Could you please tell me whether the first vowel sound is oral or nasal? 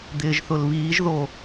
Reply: oral